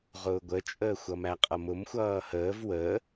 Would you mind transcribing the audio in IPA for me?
ʁʊːɡʷət͡ʃʼəː xʷʌmæqʼʌmʊm xʷʌːhəːv wəː

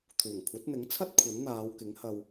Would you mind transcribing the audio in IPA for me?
t̪ʰuː˨˩ŋkʷʰɐ˨˥t̚n̪ɪ˨˥ŋt͡sʰɐ˥t̚ kʷʰɐ˨˥nn̪aː˨˧wkɪ˨˥ŋhɐ˧w

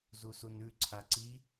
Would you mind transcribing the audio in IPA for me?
zusunʉ ǀʰaǀi

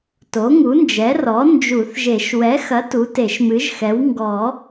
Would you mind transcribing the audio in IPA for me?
to˩˥ŋu˩˥nd͡ʒɛ˩˥rɔ˩˥ nd͡ʒu˨˩˦θʒe˨˩˦ʃ wɛ˩˥xɐ˩˥t u˩˥te˨˩˦ʃmɨ˩˥ʒxɛ˩˥w ŋɡɔ˨˩˦

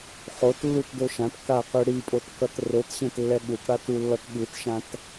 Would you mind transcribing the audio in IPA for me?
χotlːutdo ʃãt kaqɯ ɽipʼotkʌt rotɕẽtlːɛ ɠutɽatulːʌt ɠɯtʃãt

